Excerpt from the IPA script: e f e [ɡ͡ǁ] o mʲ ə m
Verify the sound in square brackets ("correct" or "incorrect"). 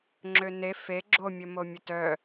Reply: correct